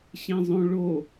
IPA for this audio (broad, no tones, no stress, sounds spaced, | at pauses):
ɕ ẽ zˤ õ ɭ o